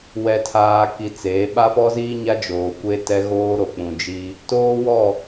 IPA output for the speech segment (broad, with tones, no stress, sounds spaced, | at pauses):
w ɛ˨ tʰ aː˨ k i˨ t͡s eː˨˦ ɓ a˦ f ɔ˦ z iː˦ ɲ a˦ d͡ʒ oː˨ kʷ e˦ t ɛ˦ ɣ oː˦ ɾ o˨ k͡p ũ˨ d͡ʒ i˦ | t oː˦ w ɔ˦˨